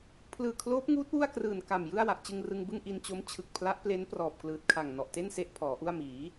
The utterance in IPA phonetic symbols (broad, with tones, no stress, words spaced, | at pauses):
pʰlɯː˨˩kʰloː˦˥p̚ŋuː˦˥t̚ wu˥˩a̯krɯː˨˩n ka˨˩mjɯ˥˩a̯wa˨˩ʔ t͡ɕɯ˧ŋrɯ˧ŋbɯ˥˩ŋ ʔi˧nt͡ɕo˦˥m t͡ɕʰɯ˨˩k̚pʰla˦˥ʔple˦˥n prɔː˨˩p̚klɯː˨˩t̚kʰa˨˩ŋ nɔ˨˩ʔte˥˩nse˦˥ʔ pʰɔː˩˦ʔu˥˩a̯ miː˩˦